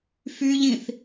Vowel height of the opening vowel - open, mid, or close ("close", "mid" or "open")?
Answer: close